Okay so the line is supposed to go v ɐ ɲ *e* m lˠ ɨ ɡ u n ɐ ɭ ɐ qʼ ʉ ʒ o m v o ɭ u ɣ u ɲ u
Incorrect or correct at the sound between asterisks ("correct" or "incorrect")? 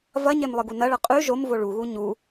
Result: correct